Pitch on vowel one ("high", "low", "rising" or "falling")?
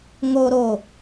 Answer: high